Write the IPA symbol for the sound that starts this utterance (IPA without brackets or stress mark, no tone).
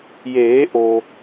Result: j